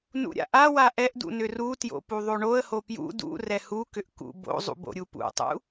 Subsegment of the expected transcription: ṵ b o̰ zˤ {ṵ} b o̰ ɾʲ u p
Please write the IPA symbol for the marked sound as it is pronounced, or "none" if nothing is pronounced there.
ṵ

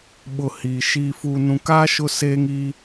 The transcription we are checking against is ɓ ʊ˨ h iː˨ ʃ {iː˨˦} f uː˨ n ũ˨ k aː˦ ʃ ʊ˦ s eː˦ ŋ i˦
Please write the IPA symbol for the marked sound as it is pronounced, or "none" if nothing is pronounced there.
iː˨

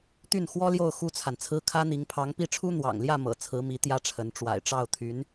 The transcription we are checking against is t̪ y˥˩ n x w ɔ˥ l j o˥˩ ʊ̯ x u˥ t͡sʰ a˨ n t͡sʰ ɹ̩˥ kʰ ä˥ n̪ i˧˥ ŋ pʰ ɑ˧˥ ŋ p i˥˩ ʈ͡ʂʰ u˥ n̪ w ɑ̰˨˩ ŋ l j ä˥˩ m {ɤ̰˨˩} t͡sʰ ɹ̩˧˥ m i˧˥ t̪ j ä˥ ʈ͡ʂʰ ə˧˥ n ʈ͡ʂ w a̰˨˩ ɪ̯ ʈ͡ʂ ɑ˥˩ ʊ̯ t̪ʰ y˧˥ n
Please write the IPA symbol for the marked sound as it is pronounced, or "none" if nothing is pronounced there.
ɤ̰˨˩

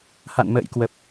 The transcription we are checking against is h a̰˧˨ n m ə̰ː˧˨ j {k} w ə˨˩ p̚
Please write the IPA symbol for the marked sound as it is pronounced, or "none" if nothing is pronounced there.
k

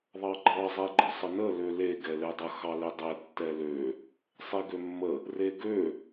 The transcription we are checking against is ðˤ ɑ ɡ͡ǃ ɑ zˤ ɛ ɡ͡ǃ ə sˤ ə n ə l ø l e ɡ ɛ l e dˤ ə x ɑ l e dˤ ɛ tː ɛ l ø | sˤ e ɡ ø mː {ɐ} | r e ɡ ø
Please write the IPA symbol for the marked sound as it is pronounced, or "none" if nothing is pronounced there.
ə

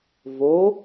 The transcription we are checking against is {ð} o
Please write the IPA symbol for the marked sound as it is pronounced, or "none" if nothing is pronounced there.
v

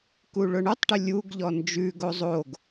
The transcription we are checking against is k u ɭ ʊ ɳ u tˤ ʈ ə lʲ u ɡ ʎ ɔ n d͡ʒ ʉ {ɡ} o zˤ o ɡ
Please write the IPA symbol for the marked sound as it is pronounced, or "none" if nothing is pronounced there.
ɡ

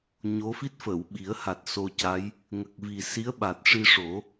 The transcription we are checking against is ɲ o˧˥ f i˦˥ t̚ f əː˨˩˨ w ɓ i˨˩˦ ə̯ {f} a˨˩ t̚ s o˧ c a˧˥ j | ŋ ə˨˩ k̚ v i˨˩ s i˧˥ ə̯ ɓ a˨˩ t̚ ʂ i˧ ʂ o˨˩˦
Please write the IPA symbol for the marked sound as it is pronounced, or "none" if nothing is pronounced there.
h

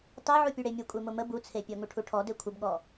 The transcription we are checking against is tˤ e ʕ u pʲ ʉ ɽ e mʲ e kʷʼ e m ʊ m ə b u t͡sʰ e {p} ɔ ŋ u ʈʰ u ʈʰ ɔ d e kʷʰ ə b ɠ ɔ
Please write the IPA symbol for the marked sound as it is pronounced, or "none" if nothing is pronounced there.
pʲ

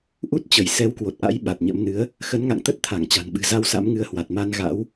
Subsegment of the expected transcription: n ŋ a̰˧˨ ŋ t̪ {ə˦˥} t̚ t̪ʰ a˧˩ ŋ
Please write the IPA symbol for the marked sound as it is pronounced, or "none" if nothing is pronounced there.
ə˦˥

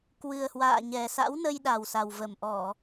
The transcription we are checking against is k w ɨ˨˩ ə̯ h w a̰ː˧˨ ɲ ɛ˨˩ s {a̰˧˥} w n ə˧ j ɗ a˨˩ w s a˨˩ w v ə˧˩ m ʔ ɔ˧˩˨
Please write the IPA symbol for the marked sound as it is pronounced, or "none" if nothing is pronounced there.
a̰˧˥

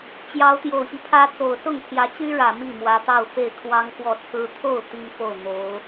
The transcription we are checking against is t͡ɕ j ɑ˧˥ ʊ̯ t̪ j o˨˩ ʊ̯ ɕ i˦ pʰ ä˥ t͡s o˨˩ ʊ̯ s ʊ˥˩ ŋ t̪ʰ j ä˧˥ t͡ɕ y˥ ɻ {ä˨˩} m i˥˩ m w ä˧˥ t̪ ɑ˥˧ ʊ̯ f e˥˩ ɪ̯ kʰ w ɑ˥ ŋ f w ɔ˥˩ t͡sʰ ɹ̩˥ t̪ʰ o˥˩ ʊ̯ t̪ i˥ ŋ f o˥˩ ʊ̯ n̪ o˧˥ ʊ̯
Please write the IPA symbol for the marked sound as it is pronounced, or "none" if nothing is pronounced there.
ä˨˩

